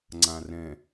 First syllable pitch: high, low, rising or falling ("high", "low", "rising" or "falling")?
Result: low